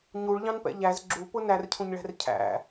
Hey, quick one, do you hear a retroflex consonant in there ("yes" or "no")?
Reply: yes